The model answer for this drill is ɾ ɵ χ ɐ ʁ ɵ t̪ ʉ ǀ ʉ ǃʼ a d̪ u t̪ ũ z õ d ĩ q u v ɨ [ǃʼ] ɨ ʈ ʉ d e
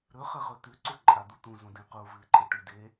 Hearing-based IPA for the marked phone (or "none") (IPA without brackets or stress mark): ǃʼ